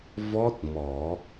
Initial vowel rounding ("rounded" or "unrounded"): rounded